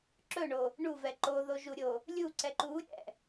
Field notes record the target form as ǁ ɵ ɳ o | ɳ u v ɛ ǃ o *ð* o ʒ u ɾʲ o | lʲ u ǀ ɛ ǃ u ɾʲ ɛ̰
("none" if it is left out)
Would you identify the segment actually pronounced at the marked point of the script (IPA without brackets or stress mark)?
ð